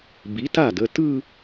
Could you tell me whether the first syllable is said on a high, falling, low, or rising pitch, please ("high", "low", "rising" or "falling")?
rising